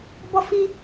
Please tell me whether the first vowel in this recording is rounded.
yes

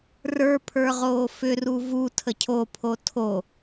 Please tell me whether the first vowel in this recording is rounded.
no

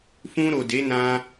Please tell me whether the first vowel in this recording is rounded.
yes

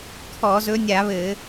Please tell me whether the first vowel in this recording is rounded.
yes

